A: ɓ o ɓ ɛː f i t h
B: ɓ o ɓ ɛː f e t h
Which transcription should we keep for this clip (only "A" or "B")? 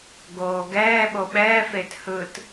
B